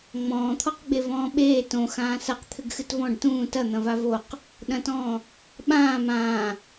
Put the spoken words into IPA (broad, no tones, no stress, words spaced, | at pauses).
ŋ͡mɔ̃ːt̪ʰɔqɡ͡be vɔ̃ːɓeː tõ xãːsɐq t̪ʰɘɡxɨtvɔ̃ɖ tũː tɐ n̪ɐ̃vavoq | ɗɐ̃tɔ̃ː | ɓãː mãː